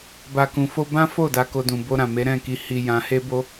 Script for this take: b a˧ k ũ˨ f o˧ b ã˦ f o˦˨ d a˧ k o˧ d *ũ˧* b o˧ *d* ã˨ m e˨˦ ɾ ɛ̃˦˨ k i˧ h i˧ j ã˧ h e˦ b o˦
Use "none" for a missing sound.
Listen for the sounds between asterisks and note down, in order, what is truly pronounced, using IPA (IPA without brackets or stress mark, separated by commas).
ũ˨, ɾ